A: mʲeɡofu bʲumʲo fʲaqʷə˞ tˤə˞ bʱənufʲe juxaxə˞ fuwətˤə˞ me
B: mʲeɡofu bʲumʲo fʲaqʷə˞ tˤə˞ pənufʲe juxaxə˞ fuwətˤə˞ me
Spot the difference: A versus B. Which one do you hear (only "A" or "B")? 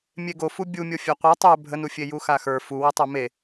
A